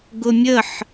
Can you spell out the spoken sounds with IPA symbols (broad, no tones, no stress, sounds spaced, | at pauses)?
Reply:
ɡ ʊ mʲ ə ħ